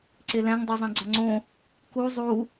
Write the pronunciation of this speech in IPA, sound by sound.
ǀ e l æ̃ ŋ dˤ o zˤ æ̃ ɡ͡ǀ ɒ ŋ͡ǀ õ | k u zˤ u

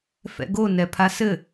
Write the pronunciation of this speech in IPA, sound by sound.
f ɛ̰ ɡ o n ɛ pʰ a s ɘ

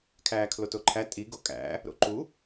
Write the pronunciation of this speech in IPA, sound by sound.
kʰ æː kʰ l o t o ǃʰ æ tʼ i ɡ o kʼ æ̰ | ɾ o̰ ǃ u

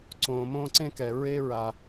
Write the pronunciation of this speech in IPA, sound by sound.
ǀ õː˨ m õː˧ ǀ ẽ˧ k ɛ˨ ɹ e˦ ɹ a˧

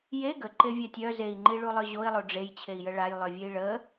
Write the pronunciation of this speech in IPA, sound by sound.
j e ɡ ə ǃ e vʲ a tʲ œ z e i̯ ŋ͡ǃ i ɭ u lˠ œ ʑ o i̯ lˠ o ɖ͡ʐ e j t͡ɕʰ e i̯ j ə ɭ a j lˠ œ vʲ e i̯ ɭ ə

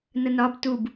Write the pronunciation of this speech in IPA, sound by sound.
n ə n ɒ b t u b

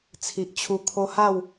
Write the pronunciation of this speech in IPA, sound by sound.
t͡sʰ i˨ ʔ t͡ɕʰ u˧ kʰ o˦ h a˥˧ w

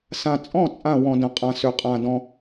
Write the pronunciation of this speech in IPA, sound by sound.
s ã˨ t͡sʼ ɔ̃˥˩ t͡sʼ ã˥˩ w ɔ̃˨ d ə̃˨ qʼ ã˨ s ø˨ qʼ ã˨ d ɔ̃˨

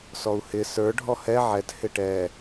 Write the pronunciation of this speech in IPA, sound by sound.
s ɔ u̯ h ɪ s ə˞ ɖʱ ɔ h ɛ ʕ ɛ t h ɪ ʈ ɛ

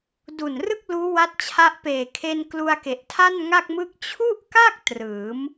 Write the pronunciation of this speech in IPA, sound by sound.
d u˨˩ n r ɯ˥˩ k̚ l uː˦˥ w a˦˥ t̚ t͡ɕʰ a˦˥ ʔ p eː˨˩ kʰ e˧ n k l u˧ a̯ k e˨˩ ʔ tʰ a˥˩ n ŋ a˥˩ k̚ m ɯ˥˩ k̚ t͡ɕʰ u˥˩ ʔ k a˥˩ k̚ t r ɯː˩˦ m

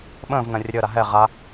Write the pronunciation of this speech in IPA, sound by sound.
ɓ ə̃ː v n ɐ̃ rʲ ə ɾʲ əː ɾ a ɦ ɛ ʁ a

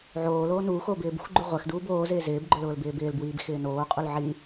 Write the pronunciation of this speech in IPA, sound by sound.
ʕ oː l oː n uː x oː b ɪː b ṳ x ɡ͡ǃ u ʁʷ ɛ x d uː b oː z ɪː z ɪː b ɡ͡ǃ ʊ l ʊː l b ɪː b ɪː l b w iː b x ɪː n oː qʼ u l ʕ i

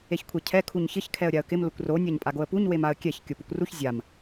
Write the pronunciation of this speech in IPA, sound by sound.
e ç kʷʰ ɛ cʰ ɛ kʰ u ɲ ç ɪ ç kʰ ɛ ə̯ ɾʲ a ə̯ k ɪ m l ʊ kʷ r o nʲ a ɲ pʼ a ɡ o ə̯ p u ɲ w e m a ə̯ kʲ ɛ ç kʲ o p u kʷ r u ç zʲ a m

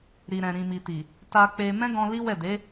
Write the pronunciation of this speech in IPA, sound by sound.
ɾ i˨ ɾ ɛ̃˨ ɾ ĩ˨ m i˨ t i˨ | t a˧ k͡p e˧ m ɛ̃˦ ɡ ɔ̃˧ l i˦ w ɛ˦˨ d e˨˦

